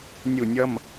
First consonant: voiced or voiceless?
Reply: voiced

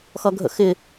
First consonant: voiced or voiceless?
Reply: voiceless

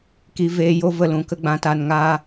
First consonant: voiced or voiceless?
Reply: voiceless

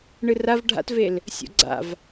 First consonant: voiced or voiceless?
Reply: voiced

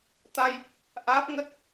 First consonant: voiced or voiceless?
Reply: voiceless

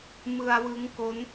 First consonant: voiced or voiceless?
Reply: voiced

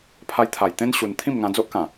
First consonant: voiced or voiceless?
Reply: voiceless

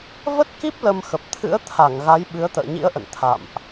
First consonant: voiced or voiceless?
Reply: voiced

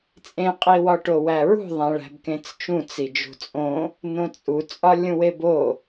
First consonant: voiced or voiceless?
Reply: voiceless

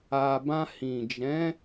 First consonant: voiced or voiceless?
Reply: voiced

